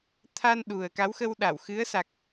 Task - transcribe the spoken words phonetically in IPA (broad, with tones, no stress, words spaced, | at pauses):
t̪ʰa˧n ɗu˨˩ə̯ ka˨˦wxə˧wɗa˧˩w xɨ˨˦ə̯ sa˨˩k̚